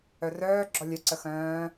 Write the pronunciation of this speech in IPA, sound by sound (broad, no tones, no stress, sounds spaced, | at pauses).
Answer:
œ r œː ɡ͡ǁ ɔ lʲ œ ǀ ə x œ̃ː